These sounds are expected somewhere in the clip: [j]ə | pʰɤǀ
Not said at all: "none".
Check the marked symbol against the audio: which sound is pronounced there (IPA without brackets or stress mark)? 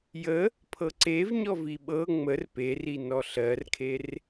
j